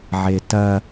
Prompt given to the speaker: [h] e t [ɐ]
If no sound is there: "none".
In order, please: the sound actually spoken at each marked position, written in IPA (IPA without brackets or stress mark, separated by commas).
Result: ʕ, ɐ